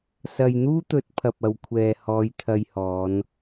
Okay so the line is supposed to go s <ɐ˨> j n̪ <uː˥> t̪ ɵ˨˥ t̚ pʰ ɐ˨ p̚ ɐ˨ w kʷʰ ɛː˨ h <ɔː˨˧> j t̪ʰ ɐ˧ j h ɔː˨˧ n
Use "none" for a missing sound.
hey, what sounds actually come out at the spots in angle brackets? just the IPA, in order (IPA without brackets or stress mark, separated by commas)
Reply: ɐ˨, uː˥, ɔː˨˧